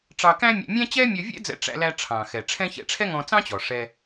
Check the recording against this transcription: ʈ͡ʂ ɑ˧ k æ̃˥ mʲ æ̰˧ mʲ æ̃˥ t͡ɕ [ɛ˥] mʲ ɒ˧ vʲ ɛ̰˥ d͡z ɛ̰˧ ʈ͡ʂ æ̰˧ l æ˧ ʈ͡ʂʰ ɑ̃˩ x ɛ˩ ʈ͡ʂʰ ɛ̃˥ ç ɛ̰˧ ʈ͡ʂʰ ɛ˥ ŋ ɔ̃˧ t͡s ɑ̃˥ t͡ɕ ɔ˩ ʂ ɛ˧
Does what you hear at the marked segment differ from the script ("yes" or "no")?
no